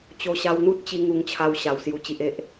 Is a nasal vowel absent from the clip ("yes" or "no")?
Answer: yes